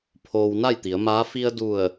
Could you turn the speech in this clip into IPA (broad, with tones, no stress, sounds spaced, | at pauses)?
pʰ oː˧ w n a˥˨ j t̪ i˩˧ ə̯ m aː˧˥ f i˧ ə̯ d u˧˩ ə̯